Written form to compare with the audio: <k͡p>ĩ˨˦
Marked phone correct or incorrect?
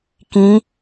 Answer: incorrect: k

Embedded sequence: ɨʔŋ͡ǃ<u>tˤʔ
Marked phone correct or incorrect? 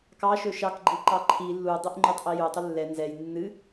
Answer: incorrect: o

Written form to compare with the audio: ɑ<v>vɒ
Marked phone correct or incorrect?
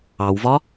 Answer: incorrect: w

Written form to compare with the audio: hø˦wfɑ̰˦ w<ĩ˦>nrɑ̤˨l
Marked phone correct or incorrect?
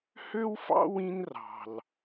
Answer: correct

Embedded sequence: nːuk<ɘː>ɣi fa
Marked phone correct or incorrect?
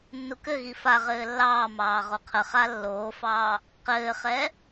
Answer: incorrect: ɘ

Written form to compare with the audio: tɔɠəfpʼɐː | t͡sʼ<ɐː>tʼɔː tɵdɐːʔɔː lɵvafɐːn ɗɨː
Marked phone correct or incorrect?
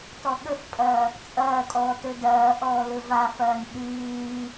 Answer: correct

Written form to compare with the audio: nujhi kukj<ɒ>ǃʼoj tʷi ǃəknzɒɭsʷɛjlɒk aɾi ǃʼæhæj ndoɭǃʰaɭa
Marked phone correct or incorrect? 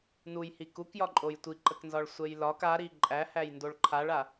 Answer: correct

